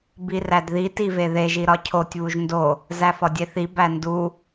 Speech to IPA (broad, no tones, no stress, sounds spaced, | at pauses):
b i r æ d ð i t i v e ð e ʒ i ɾ ɒ cʰ o tʲ β u ʒ n d o | z æ f ɒ dʲ e θ i b æ n d u